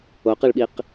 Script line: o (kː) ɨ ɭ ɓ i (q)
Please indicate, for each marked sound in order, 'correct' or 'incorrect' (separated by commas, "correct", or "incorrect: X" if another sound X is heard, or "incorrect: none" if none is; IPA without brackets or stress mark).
incorrect: q, correct